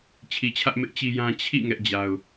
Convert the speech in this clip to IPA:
t͡ɕʰi˨t͡ɕʰä˦ʔ mɪ˦ʔt͡ɕi˦jã˦ t͡ɕʰḭ˦˨ ŋɛ˦ʔd͡ʑa˦ʊ̯

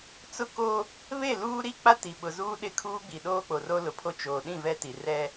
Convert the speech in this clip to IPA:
t͡sʊ˦ko˦ | βe˦˨luː˦ɾi˦k͡pa˦ ti˨ɓʊ˨zuː˦ ɗɪ˦kʰuː˦ɡ͡bi˨ɗoː˦ k͡po˨ro˦lʊ˨pʰo˦ t͡ʃoː˨ɗĩ˦˨ vɛ˦ti˨ rɛ˦

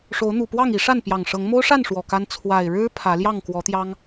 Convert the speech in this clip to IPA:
ʂo˨˦ʊ̯n̪u˨˩pwɑ˥˨ŋ i˨˦ ʂa˥˨npjɑ˨˩ŋʂɤ˨˦ŋ mo˦ʊ̯ʂa˥˨n ʂwɔ˨˩ka˦n t͡sʰwa˨˩ɪ̯ɻɻ̩˦ pʰä˨˦ljɑ˥˨ŋ kwɔ˨˦t̪jɑ˦ŋ

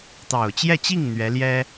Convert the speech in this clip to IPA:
t̪ɑ˨˩ʊ̯t͡ɕjɛ˥˧t͡ɕi˥˩ŋ n̪ɥɛ˧˥ljɛ˥

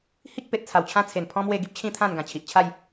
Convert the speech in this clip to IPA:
hi˦k̚pe˨t̚t͡sʰa˨˩w t͡ɕʰã˦t͡sʰe˨˩npʰɔ̃˦ mwe˥˧ ɡi˦p̚t͡ɕʰĩ˥˧t̪ʰã˥˧nɡã˨˩ t͡ɕʰi˨ʔt͡ɕʰa˥˧j

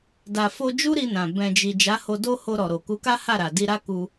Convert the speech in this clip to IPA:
da˨ fo˧d͡ʒu˦ ɾi˧nã˨ bɛ̃˨d͡ʒi˨ d͡ʒa˨˦ho˧do˦ ho˧ɾɔ˨ ɾo˨ku˨˦ka˦ha˦˨ ɾa˨ di˧ ɾa˦ku˧

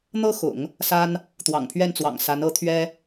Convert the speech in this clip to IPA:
n̪ɤ˥xʊ̰˨˩˦ŋ | sa˥n | t̪wɑ̰˨˩ŋpʰɥɛ˥˩nt͡swɑ̰˨˩ŋ sa˧˥n ɤ˧˥t̪ʰɥɛ˥

